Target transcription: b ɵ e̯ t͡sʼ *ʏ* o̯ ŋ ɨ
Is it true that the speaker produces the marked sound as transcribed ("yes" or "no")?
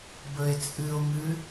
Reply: no